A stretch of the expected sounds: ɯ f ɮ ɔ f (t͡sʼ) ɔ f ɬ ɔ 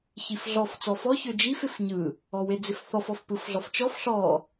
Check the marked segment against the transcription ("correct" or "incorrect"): incorrect